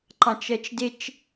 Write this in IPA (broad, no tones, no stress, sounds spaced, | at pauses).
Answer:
ǃ ɑ̃ t͡ʃ ɜ t͡ʃ d ɪ t͡ʃ